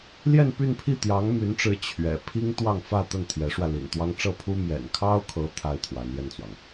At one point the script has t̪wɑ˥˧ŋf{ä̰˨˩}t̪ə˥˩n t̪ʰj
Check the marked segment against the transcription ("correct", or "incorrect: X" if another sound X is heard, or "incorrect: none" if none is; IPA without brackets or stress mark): incorrect: ä˥˧